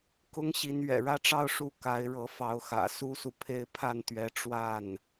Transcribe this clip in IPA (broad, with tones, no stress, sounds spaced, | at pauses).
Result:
k ʊ˥ ŋ ɕ i˧˥ n ɥ ɛ̰˨˩ ɻ ä˥ ʈ͡ʂ ɑ˥˧ ʊ̯ ʂ u˥˩ k a˧˥ ɪ̯ ɻ ɤ˧˥ f ɑ˧˥ ʊ̯ x ä̰˨˩ s u˥ s u˨ pʰ e˥˧ ɪ̯ pʰ a˥˩ n t̪ ɥ ɛ˧˥ ʈ͡ʂ w a˥˩ n